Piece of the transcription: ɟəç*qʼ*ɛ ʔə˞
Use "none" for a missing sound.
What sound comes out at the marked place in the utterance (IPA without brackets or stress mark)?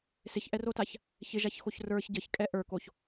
kʼ